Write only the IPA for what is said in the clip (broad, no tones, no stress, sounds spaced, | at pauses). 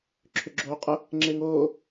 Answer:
ǁʰ ʏ ɡ͡ǁ oː qʼ ɐ | ŋ͡ǁ e ŋ oː